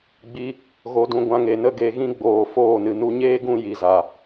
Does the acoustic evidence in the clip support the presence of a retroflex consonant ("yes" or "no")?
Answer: no